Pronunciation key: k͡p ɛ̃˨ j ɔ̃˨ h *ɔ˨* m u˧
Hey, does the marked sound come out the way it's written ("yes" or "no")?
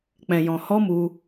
no